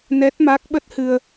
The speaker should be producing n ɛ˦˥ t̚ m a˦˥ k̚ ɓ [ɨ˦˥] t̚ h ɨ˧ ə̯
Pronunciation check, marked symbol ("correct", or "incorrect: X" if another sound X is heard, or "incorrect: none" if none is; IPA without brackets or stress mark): incorrect: ə˦˥